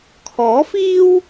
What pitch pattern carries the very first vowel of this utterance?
rising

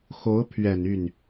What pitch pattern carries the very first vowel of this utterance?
rising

